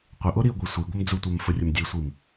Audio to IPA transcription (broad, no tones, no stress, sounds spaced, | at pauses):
qʷ ɪ ʔ o ɾ i ə̯ ɡʷ ɛ sʷ i ɡʷ ɪ m d͡z u tʷ ɛ m f ə rʲ ə m dʲ e sʷ i m